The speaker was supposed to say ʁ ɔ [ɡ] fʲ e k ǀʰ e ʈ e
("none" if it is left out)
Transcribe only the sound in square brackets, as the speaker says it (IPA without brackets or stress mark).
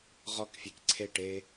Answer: k